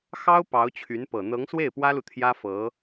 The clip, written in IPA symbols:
xɑ˥ʊ̯ pɑ˧˥ʊ̯t͡ɕʰy˧˥npɤ˨˩ n̪ɤ˧˥ŋswe˥˩ɪ̯pwä˥lu˨ t̪ʰjä˥fɤ˧˥

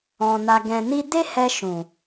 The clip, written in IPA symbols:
ɔ̃˨ na˨ ɡɛ̃˨ni˧ de˦hɛ˧ ʃũ˨

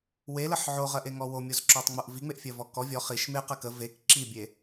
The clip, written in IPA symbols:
weləħ ʕoʁɜʔeŋɔ womʲozǁɔtˤŋ͡moʔ viŋ͡meʔfʲɜvɔ kɔ vʲɔ χiʃ meqɜk ə vek ǁibʲe

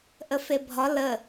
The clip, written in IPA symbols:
ʔəfebʱɒ lə

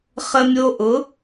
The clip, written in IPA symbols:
χə˧mʲo˧ ʔʊ˩˧

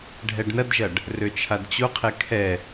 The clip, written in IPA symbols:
ɖʱɛɖnɐdʒɐɖ | røt͡ʃʰadt͡ɕoqʰɛ kʰɛ

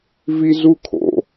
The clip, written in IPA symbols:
vizukʰo̰

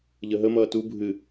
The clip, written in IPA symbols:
ʎəɦəmʌː tu bʱɨ

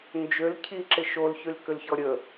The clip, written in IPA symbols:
nd͡ʒøl cʰiǁɪ ʃolçylkʏlçɔ ɾʲə

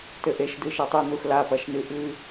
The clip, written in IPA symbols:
tɘʔeʃ dɨʃɛtˤɨ nuxla pɐʃnɨʔɨ

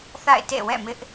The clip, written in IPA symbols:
θa̰˦˨ɪ̯tḛ˦˨wɛ̰˦˨ mɪ˦ʔ

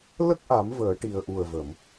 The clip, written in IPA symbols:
lə˦˥k̚ʔa˨˩˦m vəː˨˩˦ʈi˨˩ə̯ʔu˨˩ə̯və˨˩˨m

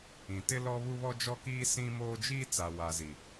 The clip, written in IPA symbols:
ĩ˨tɪ˦ lɔ˦βu˦βɔ˦ d͡ʒɔ˦kiː˦ sĩ˦moː˦ d͡ʒiː˦t͡sa˨ wa˨zi˨

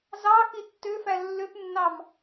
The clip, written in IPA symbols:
zɑ xitːøfæ lːøpnːɑm

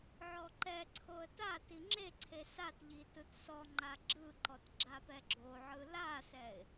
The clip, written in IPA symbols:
ʕɔǃɛǀʰoə̯ ta tiŋ͡ǁeǀʰe satʎi tɯtsɔŋ͡ǃa ɡ͡ǁɯǃɔt ɡ͡ǁapɛɡ͡ǁoʕɯ lasɛɪ̯

